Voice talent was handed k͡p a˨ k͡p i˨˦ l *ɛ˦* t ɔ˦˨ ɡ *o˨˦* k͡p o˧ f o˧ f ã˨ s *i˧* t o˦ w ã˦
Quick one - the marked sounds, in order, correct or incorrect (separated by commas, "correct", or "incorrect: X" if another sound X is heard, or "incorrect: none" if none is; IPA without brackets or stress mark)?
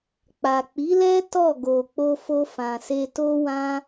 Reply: correct, incorrect: o˨, incorrect: e˧